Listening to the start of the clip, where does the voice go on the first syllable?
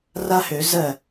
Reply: high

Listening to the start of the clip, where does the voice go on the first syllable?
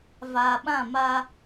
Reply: low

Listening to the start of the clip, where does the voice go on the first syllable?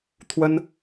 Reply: high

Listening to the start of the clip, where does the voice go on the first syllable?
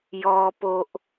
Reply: high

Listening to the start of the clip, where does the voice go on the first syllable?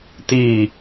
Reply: low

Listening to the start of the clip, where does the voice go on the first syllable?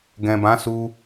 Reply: low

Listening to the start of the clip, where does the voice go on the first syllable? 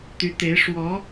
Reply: rising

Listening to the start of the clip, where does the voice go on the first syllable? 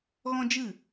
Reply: high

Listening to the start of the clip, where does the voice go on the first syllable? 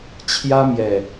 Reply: high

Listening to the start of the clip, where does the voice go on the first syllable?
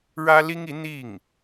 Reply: high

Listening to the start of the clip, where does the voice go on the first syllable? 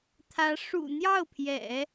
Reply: rising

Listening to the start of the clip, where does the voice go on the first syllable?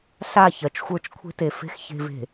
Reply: falling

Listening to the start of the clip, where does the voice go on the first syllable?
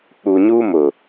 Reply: low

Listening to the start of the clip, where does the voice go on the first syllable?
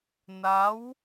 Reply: rising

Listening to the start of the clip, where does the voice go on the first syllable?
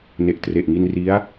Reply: low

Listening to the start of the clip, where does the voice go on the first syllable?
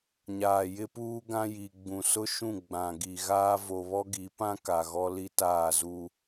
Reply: low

